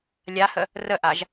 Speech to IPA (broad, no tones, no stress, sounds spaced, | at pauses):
lʲ a h ə | r ə ʔ a ʒ